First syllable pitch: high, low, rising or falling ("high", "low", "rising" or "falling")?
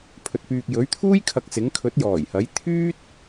low